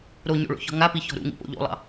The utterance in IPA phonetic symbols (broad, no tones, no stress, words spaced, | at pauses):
ɾoɲo̰ɭo̰çɔ̤ ŋapiçɔ̤ ɾṵŋḭpo̰ ʎo̰lˠɑ̰